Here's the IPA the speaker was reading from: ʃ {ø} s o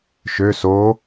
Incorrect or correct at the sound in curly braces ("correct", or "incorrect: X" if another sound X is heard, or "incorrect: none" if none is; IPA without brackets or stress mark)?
correct